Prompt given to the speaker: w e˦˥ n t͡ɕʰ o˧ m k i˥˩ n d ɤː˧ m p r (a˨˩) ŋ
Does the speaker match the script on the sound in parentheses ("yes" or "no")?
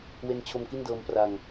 no